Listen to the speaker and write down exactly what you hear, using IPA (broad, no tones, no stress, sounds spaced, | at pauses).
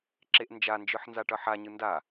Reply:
ǁ e ʔ n d͡ʒ a n d͡ʒ ɯ ħ n z a ʈ ʌ ħ a ɲ ɯ n d a